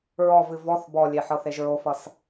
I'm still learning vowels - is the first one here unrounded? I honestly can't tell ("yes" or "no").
no